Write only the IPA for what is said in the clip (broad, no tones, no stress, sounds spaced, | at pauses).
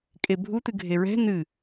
kʼ e bʱ u t̪ ɨ ɡʱ e ɹ ɛ̤ n̪ ɨ